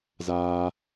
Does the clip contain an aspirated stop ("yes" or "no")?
no